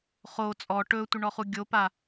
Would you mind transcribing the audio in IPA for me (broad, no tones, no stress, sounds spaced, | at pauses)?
χ o t͡sʼ ɔ ʈ ɵ tʷ ɪ ɳ ɔ χ u ɡʲ o p a